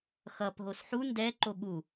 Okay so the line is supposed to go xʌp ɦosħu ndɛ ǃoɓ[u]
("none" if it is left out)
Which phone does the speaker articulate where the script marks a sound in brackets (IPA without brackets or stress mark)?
u